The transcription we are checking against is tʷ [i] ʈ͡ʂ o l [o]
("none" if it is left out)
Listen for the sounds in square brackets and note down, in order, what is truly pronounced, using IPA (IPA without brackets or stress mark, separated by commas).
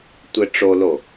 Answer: e, o